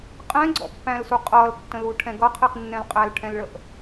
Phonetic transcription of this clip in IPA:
qʼ ɛ̃ ɡ͡ǀ ɔ̰ pː æ̃ l s u qʼ ʌ l tː ə̃ l u ʈʰ ɛ̃ ɡ ʌ qʰ i q nː ɛ̃ l qʼ æ l ʈʰ ɛ̃ l ɭ ə ʔ

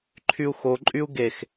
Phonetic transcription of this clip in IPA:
ǃʰ y u̯ x o ǃʼ y u̯ ɡ e x

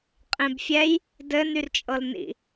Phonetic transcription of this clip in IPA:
qʼ ẽ b fʲ ɛ j | d ɘ n y r t͡ʃʼ ɤ l n ḭ

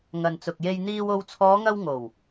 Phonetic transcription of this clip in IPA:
ŋ ɐ˨ n t͡s ʊ˨ k̚ j e˧ j n̪ iː˧ w o˧ w t͡sʰ ɔː˨˧ ŋ ɐ˧ w ŋ o˨˩ w

